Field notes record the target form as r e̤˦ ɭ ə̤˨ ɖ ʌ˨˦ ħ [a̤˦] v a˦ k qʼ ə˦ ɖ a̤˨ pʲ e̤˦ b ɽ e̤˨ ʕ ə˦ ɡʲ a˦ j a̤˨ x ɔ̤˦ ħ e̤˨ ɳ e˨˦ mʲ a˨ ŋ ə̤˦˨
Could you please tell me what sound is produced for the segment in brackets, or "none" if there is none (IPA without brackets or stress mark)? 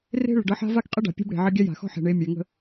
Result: a̤˦